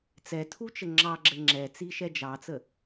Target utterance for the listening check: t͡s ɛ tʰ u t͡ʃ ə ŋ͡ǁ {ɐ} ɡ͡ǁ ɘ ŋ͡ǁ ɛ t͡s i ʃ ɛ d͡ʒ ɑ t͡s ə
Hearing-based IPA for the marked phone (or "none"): ɑ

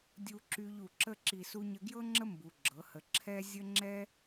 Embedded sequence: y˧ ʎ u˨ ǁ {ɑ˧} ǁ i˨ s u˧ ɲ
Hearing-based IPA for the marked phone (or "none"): ə˧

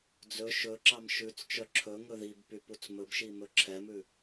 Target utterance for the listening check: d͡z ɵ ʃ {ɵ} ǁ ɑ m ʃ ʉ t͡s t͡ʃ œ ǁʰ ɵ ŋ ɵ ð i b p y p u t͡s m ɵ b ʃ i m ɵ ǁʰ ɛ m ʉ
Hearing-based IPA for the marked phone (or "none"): ɵ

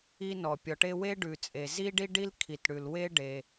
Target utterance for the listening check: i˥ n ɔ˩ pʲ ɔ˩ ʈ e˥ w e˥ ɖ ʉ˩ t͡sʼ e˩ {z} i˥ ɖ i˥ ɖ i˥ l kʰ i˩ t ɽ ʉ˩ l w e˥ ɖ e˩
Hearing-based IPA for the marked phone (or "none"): z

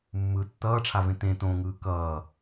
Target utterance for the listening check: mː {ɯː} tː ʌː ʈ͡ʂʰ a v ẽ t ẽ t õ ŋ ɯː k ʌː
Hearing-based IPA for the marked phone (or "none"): ɯ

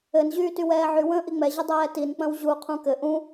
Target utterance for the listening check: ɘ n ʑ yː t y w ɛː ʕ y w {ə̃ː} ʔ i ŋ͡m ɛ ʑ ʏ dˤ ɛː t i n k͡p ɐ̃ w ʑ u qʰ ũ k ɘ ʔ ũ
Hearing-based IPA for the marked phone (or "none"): ə̃ː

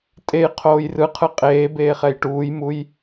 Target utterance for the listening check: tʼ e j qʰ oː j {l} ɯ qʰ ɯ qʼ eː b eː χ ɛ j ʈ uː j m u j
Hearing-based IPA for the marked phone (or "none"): r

